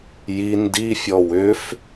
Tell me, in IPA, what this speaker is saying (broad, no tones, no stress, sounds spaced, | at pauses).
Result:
j i n d i fʲ ɔ w ʏ f